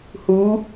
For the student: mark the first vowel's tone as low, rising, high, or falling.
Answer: rising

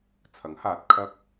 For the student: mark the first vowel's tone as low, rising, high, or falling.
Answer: rising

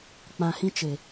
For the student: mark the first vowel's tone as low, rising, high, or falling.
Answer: low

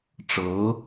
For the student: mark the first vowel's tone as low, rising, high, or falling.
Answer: rising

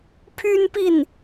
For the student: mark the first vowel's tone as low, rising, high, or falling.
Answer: high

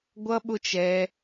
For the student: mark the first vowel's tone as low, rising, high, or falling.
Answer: high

